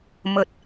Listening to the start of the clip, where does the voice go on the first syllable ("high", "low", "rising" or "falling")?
high